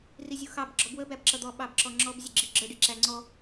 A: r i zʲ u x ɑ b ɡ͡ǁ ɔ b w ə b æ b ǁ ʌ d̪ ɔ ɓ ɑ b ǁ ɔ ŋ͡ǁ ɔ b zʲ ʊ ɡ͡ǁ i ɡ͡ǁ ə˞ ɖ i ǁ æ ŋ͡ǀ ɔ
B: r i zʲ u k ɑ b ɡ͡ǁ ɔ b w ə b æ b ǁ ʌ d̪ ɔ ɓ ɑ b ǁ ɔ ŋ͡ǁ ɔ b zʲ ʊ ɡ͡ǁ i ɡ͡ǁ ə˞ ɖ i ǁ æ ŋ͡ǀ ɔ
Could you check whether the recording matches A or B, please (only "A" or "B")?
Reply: A